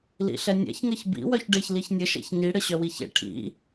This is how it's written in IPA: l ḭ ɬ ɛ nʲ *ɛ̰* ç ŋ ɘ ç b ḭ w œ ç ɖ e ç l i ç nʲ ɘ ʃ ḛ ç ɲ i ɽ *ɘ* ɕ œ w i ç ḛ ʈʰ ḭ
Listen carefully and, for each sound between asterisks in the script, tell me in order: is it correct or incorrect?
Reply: correct, correct

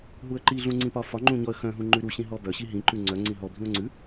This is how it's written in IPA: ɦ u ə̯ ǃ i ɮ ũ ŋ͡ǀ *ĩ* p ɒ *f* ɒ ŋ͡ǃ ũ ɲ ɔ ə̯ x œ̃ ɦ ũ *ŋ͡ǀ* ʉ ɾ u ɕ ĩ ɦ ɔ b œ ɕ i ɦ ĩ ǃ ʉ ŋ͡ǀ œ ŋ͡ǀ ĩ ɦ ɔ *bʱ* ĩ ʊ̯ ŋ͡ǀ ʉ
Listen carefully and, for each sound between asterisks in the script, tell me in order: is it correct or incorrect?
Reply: correct, correct, incorrect, correct

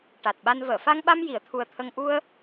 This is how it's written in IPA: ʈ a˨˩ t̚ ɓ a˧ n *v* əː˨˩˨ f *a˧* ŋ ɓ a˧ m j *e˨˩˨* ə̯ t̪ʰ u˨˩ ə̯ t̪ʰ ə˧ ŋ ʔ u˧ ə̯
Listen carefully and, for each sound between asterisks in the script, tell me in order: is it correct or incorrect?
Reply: correct, correct, incorrect

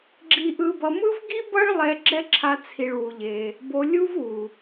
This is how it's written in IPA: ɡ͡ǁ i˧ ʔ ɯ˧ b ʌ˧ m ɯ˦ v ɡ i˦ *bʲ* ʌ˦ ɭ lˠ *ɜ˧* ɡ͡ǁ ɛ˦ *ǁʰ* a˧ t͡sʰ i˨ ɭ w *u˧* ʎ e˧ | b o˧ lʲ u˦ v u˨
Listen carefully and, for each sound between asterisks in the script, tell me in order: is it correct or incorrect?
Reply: incorrect, incorrect, correct, correct

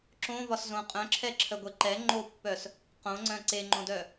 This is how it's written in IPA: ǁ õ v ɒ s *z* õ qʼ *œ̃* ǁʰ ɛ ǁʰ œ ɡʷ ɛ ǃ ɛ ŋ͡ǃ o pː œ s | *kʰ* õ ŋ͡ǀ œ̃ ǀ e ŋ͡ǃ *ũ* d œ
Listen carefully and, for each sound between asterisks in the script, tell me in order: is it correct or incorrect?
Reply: correct, correct, incorrect, incorrect

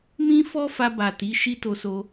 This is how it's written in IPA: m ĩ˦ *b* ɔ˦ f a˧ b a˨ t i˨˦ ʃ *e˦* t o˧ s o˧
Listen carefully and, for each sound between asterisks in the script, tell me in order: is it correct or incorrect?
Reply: incorrect, incorrect

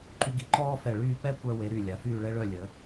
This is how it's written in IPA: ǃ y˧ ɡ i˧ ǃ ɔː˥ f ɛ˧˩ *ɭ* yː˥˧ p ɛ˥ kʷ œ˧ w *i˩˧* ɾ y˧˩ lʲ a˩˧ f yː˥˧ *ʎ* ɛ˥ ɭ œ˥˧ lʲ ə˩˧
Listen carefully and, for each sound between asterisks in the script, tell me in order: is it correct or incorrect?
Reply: correct, incorrect, incorrect

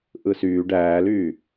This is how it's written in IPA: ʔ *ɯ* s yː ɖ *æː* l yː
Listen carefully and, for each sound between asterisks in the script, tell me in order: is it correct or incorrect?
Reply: correct, correct

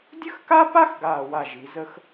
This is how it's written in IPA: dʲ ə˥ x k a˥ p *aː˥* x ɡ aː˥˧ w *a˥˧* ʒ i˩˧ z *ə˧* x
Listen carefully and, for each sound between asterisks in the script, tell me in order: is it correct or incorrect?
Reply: incorrect, correct, incorrect

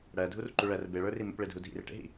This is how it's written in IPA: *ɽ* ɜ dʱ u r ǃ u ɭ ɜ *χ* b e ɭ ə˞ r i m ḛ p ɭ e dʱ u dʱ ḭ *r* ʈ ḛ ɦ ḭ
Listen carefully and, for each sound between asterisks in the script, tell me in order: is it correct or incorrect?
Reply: correct, incorrect, correct

